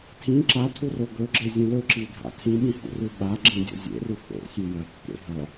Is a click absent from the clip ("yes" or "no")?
no